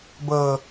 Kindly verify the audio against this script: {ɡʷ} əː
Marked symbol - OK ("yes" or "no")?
no